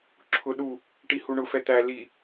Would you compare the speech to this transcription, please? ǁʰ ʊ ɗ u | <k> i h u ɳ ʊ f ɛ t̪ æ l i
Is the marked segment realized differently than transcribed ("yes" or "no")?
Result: yes